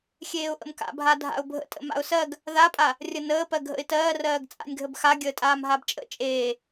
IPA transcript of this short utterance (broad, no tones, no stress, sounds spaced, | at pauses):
xʲ eː ʊ̯ ʔ ə̰ m k a̰ bʱ a dʱ a̰ ʊ̯ bʱ ə̰ tʼ ə̰ m a̰ ʊ̯ s ɜ ɡ | ð a pʼ a | rʲ ə n əː p ɜ ɡʱ ə̰ ɪ̯ t ɜː r ɜː ɡ t͡sʼ a̰ nʲ ɡʱ ə b x a ɡʲ əː tʼ aː m ɦ a b t͡ʃʼ ə̰ t͡ʃʼ eː